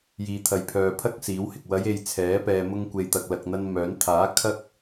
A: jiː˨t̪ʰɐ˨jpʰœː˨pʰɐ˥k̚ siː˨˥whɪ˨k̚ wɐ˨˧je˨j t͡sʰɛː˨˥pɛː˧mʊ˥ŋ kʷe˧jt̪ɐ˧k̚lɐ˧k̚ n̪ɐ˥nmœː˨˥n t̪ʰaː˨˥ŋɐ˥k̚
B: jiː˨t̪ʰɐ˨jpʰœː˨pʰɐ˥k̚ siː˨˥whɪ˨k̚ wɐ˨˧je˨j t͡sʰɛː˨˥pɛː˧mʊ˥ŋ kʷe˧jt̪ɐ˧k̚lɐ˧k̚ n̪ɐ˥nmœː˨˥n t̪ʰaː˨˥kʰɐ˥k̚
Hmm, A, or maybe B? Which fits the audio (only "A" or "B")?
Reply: B